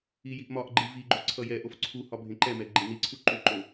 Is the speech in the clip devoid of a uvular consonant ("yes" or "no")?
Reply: yes